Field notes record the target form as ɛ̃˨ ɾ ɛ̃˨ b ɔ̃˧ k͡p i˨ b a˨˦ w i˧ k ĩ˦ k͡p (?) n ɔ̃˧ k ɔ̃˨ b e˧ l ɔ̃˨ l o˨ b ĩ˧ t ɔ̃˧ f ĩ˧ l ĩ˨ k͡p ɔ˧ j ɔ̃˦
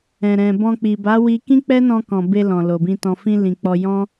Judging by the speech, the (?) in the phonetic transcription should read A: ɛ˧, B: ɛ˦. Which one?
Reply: B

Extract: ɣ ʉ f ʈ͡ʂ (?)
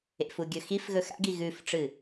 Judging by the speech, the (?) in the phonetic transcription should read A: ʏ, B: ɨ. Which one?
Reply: B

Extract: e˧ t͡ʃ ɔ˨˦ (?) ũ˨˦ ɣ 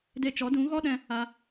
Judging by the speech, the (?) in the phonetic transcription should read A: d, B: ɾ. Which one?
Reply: A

